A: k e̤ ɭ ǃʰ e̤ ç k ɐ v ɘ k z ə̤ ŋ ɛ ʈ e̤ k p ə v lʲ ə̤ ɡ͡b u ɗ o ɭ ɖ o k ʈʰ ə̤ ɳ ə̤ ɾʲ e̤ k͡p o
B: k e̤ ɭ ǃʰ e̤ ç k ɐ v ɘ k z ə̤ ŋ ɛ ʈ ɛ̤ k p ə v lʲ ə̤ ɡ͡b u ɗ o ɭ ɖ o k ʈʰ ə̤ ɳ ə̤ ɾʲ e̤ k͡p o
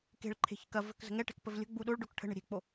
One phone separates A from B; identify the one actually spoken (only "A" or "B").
B